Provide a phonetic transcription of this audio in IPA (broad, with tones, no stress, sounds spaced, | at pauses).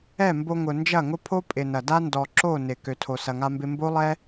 ɛ˦˨ m b o˧ ŋ ʊ˨ n d͡ʒ ɐ˦˨ ŋ ʊ˦ pʰ o˦ pʼ ɪ˨ n ɐ˨ d a˦ n d ɔ˨ ǁ o˦˨ n ɪ˨ k ø˨ tʰ o˨ s ɐ˨ ŋ a˧ m b ɪ˧ m b o˦ lˠ ɛ˦